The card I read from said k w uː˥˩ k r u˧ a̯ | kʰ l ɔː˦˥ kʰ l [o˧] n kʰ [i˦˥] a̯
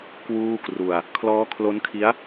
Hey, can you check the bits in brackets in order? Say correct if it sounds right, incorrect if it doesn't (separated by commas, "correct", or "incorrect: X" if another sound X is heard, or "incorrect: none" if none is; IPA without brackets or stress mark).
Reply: incorrect: o˦˥, correct